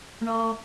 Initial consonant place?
retroflex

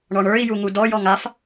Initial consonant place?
retroflex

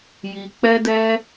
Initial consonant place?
palatal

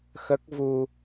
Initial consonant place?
velar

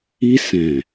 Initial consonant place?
alveolar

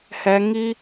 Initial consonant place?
glottal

